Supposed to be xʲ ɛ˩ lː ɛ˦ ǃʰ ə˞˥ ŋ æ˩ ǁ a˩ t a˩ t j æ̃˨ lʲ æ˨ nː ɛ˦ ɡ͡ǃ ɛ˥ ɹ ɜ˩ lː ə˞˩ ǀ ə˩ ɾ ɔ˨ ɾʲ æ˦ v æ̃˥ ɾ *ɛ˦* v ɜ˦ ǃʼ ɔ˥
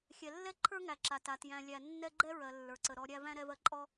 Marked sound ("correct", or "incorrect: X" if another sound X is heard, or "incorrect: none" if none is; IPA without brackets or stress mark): correct